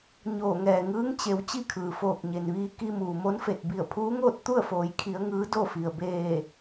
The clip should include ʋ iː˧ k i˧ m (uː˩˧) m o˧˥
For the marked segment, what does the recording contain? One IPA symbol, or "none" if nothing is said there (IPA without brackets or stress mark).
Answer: uː˩